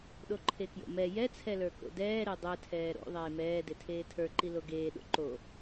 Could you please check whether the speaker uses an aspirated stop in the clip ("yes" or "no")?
yes